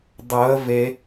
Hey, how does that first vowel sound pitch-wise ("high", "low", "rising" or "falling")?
rising